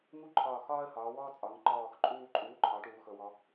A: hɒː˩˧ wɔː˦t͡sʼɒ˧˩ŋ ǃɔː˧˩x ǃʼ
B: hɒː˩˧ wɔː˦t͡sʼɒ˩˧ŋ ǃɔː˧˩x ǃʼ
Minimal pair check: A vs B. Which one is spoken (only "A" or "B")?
B